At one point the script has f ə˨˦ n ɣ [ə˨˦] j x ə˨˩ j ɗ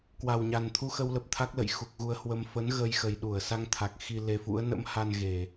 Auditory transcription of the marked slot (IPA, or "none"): ə˧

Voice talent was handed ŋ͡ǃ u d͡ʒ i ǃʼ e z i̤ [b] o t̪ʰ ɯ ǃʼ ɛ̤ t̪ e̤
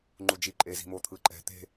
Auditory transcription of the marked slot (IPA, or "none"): m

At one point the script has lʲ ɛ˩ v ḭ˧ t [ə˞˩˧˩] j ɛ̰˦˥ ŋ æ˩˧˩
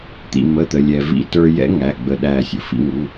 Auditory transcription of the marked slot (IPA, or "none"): ə˞˧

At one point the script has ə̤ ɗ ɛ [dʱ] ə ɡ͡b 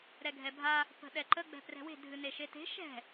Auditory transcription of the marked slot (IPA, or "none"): ǃ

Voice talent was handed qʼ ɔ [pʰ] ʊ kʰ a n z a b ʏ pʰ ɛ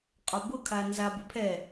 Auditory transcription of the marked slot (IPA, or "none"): b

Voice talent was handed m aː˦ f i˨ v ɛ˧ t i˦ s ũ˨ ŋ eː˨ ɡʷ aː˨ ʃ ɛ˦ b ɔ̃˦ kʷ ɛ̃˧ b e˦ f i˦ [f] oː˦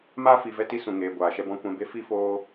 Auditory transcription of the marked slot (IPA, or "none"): f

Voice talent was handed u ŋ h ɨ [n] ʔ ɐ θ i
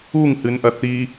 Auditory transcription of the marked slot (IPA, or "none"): n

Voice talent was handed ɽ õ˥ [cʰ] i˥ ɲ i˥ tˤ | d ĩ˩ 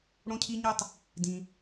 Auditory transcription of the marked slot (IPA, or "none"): cʰ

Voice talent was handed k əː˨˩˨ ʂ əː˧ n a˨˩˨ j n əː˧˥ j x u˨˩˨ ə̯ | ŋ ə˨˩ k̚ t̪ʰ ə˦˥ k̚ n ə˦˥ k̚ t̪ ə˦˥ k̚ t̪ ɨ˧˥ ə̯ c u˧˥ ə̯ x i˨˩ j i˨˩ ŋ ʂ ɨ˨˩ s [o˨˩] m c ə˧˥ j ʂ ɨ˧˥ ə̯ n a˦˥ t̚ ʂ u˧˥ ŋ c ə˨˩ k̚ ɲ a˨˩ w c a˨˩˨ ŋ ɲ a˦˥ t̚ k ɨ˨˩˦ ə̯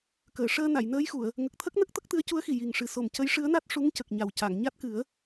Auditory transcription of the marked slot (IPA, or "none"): o˨˩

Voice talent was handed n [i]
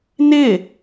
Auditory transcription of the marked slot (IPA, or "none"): ɪ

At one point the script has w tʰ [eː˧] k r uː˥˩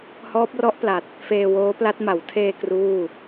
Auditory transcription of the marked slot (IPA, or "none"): eː˧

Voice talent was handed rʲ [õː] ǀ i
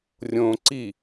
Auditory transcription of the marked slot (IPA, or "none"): õː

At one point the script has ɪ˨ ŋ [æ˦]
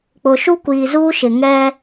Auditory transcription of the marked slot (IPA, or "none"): ɛ˦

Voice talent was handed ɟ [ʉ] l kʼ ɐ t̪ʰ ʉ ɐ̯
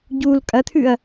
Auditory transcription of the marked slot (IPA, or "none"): u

